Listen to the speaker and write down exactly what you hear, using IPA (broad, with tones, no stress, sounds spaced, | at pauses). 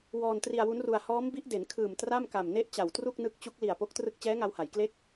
w ɔː˧ n t r i˧ a̯ w u˦˥ n r u˧ a̯ h ɔː˦˥ m b i˦˥ ʔ d e˩˦ n kʰ ɯː˨˩ m t r a˥˩ m k a˨˩ m n e˥˩ ʔ t͡ɕ a˨˩ w t r u˥˩ k̚ n ɯ˦˥ k̚ t͡ɕ u˦˥ k̚ l i˨˩ a̯ p o˦˥ k̚ t r ɯ˥˩ k̚ t͡ɕ ɛː˦˥ ŋ a˧ w h a˩˦ j k l e˦˥ k̚